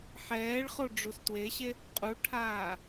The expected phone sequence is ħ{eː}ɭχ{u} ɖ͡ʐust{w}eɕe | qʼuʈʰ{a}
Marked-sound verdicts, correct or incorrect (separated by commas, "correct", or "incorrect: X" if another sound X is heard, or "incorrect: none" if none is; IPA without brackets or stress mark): incorrect: ɛː, incorrect: o, correct, incorrect: aː